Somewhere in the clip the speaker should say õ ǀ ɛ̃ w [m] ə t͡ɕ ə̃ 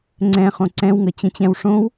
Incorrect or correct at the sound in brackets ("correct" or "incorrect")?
incorrect